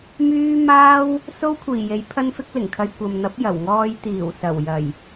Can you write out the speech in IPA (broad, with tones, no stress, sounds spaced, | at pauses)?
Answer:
m yː˥ m aː˥ w | s o˥ w kʷʰ iː˨˩ j e˨˥ j pʰ ɐ˥ n f ɪ˥ k̚ l ɪ˨˩ ŋ kʰ ɐ˧ j kʷ ɐ˨ m n̪ ɐ˨˥ p̚ j ɐ˨˩ w ŋ ɔː˧ j t̪ iː˨˩ w s ɐ˨˩ w j ɐ˨˩ j